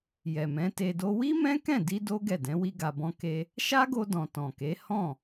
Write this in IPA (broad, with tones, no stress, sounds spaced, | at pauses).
j ɛ˨ m ɛ̃˨˦ t e˧ d o˦ w i˦ m ɛ̃˦ k ɛ̃˦˨ d i˧ d o˦ ɡ ɛ˦˨ d ɛ̃˨˦ w i˦ ɡ a˧ b ɔ̃˦ k e˦ | ʃ a˦ ɡ o˧ d ɔ̃˨ t ɔ̃˨ k e˨˦ h ɔ̃˦˨